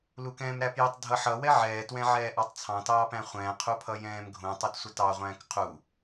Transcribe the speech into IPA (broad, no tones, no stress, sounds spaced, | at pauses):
l u k ɛ̃ː m ɾ æ p j ʊ tˤ dʱ ʌ ħ ʌ w ɛ ʕ ɛː t w ɛ̃ ʕ ɛː ʔ ɑ tˤ t͡sʰ ɑ̃ t ɑː p æ̃ χʷ ɛ̃ː qʰ u pʰ ʌ j ɛ̃ː m ɡʱ ũ tˤ u t sʷ ʌ t ɑ ʁʷ æ̃ː k qʰ u